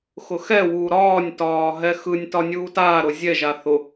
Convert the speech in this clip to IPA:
xʊxɛwuː ɾɒːnʲtɒː ɦɛxɯnʲtɒ nʲuːtaːɾʊ zʲɛʒa θʊ

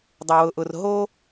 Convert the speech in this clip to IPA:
dˤʊ˩wʊ˩ʔʊ˩r ɦo˥

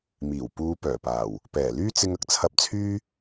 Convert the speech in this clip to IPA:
miː˨˩w puː˨˧ pœː˨˩paː˨˩w | pɛː˨˩lyː˥t͡sɪ˧ŋ ɐ˧k̚t͡sʰɐ˧p̚t͡sʰyː˥

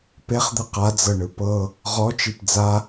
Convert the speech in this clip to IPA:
peχd̪ɯ qad͡zɤɳɯ pɤ | ʁɔt͡ʃip d͡za

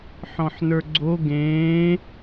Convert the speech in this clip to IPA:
ħɔ̃ħnə˞ɡ͡ǀo ɡẽː

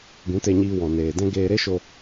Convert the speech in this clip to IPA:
ɡũ˨˦te˧ɲiː˧wɔ̃˨ neː˨dɛ̃˦ ɡeː˧ɾe˦ʃo˧

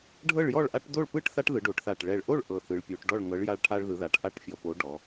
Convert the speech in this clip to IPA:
ɖʱɤ˥˨ɭjɔ˥˨ɭ ʔa˦ʈ do˥˨ɭpɯ˥˨ʈθa˦ʈ ðɯ˩˧ɖo˩˧ʈθa˨˩ʈ ɭɛ˨˩ɭʔo˥˨ɭ ʔɤ˨˩θɯ˩˧ɭpʲo˩˧ʈ ɖɔ˥˨ɭŋɤ˨˥ɭ ja˦ɭʈʰa˦ɭðɯ˩˧ða˩˧ʈ ʔa˥˨ʈfʲɔ˨˩po˨˥ ɖɔ˩˧

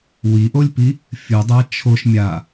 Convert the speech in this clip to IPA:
wiʔolʲpi | fʲɯdˤa t͡ʃʰoʃ mʲa

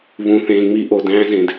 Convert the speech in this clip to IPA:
βũ˧θẽː˧ŋ͡mi˦ ʔo˨dæ̃ː˦ zẽ˧d

